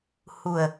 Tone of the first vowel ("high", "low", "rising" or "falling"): low